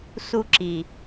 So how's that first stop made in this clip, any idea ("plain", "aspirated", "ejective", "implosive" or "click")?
click